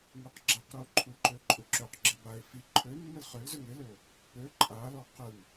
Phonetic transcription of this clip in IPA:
ŋ u q ɡ͡ǁ a q ɾ u o̯ ǃʰ u ǃ ø ǃʼ u ǁ ø q ɡ͡ǁ ɘ b a e̯ f i ǃʰ ø mː ɘ l χ ø l z ø ŋ ɪ l ø o̯ | p ø ǃʼ a l ɔ q ɯ ŋ

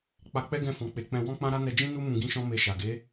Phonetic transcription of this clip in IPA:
k͡p a˧ k͡p ɛ˦ ɡ ɛ̃˦˨ f ɔ̃˨ k͡p e˨˦ k͡p ɛ̃˧ w ɔ̃˦ k͡p ã˦ ɾ a˦ n ɛ˧ d͡ʒ ĩ˦ n u˦ m ũ˧ ɡ ĩ˦ ʃ ɔ̃˦ m e˧ ʃ a˨ ɡ e˨˦

